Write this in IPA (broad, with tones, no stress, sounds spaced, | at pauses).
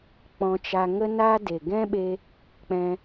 k͡p ɔ̃˧ t͡ʃ a˧ ŋ ə˦ n a˦ d e˨ ɡ ɛ̃˦ ɓ e˧ | k͡p ɛ̃˧